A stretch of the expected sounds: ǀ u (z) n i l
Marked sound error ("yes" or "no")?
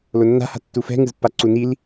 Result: yes